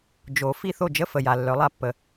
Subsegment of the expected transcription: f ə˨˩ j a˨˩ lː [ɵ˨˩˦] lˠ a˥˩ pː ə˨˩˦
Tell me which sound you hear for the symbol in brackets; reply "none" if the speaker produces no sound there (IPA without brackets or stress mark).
œ˨˩˦